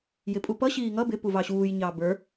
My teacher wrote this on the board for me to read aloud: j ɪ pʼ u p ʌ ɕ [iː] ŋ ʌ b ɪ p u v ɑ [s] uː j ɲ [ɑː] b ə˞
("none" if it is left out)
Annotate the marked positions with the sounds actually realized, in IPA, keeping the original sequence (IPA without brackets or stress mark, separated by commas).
iː, ɕ, ɑː